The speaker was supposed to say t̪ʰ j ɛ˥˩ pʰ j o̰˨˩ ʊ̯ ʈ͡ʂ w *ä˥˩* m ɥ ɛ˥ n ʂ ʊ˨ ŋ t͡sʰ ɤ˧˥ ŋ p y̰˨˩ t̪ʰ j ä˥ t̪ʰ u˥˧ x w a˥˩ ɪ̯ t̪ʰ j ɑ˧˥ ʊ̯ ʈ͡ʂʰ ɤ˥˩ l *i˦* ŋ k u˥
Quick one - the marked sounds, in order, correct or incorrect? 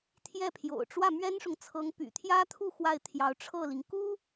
correct, incorrect: i˩

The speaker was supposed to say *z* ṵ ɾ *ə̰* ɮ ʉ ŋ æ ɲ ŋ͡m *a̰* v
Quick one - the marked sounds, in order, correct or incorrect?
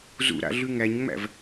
correct, incorrect: a̰, incorrect: æ̰

